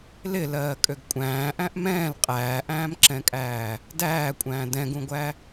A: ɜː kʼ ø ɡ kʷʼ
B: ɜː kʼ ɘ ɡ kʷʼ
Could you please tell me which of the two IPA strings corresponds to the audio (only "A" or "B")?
A